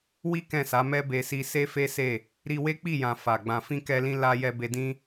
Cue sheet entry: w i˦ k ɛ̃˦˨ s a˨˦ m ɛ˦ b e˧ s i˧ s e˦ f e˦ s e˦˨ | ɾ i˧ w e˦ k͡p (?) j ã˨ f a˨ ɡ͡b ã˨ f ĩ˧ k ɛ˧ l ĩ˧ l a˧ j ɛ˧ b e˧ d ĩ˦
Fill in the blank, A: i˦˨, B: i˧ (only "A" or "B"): A